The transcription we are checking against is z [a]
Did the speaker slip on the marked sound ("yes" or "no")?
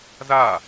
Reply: no